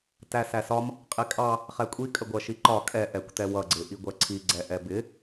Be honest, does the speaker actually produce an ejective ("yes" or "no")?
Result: yes